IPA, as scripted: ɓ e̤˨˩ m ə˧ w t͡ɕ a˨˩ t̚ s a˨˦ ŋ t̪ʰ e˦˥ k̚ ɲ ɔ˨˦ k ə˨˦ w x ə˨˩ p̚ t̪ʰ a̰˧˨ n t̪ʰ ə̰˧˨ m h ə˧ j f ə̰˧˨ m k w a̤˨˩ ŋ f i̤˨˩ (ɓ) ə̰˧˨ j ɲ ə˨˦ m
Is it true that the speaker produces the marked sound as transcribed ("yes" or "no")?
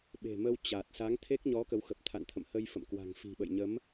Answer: yes